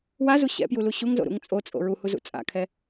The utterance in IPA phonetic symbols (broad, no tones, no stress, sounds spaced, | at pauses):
w a z u ɕ ɛ̰ p j u l u ɕ u ŋ z o̰ ɾ ṵ ŋ t͡sʼ o t͡sʼ o̰ ɹ u h u z ṵ t͡sʼ a̰ kʰ ɛ